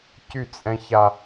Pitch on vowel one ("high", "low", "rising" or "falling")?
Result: falling